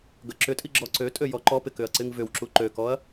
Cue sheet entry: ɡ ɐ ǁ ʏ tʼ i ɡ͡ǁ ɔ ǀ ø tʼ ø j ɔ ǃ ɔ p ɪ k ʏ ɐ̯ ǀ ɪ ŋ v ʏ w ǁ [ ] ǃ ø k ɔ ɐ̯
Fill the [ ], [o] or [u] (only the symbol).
u